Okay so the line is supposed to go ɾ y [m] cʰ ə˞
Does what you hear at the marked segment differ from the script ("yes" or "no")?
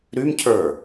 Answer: no